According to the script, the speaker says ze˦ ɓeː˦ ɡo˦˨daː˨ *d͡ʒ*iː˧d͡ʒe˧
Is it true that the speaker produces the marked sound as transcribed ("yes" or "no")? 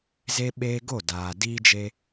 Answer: no